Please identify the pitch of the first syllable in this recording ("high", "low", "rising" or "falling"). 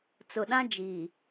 low